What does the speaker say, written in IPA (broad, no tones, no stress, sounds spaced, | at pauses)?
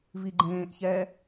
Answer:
v i ɡ͡ǃ ẽː ʔ ç ɛ